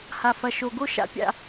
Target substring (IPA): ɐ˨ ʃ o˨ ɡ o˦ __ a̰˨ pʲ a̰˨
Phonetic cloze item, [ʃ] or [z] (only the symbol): ʃ